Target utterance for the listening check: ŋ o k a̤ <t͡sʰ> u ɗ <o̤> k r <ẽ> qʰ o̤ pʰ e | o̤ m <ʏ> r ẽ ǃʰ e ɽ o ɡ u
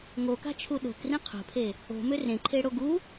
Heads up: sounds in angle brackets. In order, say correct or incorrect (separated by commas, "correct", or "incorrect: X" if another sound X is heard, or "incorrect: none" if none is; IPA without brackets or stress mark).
incorrect: t͡ʃʰ, correct, incorrect: ĩ, correct